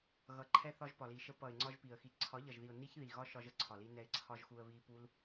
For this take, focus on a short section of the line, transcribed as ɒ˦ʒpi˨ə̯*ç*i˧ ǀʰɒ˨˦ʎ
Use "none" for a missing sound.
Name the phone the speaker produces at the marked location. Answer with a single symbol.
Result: x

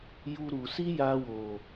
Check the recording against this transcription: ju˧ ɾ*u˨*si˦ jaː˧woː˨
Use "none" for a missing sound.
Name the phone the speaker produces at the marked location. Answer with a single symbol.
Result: u˨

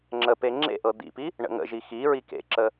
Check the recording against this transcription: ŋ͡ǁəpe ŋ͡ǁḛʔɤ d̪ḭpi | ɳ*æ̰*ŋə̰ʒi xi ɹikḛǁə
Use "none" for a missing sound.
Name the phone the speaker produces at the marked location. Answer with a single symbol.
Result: ə̰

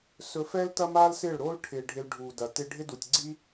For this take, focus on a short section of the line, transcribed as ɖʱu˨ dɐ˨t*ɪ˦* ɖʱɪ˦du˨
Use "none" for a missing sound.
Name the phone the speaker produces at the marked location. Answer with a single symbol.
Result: ɪ˦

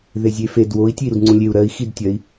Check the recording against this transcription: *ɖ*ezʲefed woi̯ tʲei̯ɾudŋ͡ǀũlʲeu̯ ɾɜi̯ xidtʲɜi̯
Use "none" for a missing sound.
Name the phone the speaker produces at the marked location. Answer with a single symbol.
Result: ð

